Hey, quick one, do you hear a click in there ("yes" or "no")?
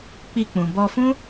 no